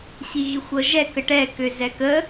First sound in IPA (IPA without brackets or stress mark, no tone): ɕ